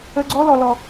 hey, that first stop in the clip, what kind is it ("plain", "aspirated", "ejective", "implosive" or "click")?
click